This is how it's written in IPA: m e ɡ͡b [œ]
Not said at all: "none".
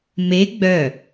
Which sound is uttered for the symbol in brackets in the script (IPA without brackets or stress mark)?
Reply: œ